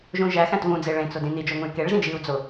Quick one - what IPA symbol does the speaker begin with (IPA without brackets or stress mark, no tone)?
ʒ